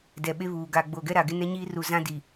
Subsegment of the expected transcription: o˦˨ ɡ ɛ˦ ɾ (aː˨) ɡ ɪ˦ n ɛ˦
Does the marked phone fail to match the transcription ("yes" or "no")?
yes